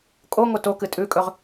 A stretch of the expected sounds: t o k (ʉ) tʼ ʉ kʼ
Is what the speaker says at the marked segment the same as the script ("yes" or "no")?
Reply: no